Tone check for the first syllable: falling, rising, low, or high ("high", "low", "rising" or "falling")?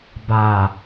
low